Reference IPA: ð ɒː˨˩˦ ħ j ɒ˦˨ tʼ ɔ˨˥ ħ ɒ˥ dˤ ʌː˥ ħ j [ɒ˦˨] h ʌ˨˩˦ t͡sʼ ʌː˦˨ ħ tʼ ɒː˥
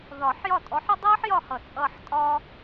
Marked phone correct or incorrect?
correct